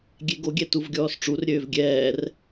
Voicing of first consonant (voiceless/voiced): voiced